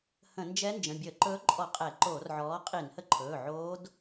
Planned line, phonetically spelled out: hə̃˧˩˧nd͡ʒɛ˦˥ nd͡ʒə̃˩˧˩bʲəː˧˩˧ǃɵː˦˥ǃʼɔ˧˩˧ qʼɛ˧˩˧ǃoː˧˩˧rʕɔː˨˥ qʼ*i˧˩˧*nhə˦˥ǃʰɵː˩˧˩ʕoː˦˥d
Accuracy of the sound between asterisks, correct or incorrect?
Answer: correct